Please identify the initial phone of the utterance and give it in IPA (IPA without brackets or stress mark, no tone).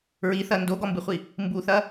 ɹ